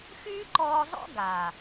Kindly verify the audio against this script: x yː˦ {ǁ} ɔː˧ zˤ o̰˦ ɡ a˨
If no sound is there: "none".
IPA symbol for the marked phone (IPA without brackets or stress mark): ǃ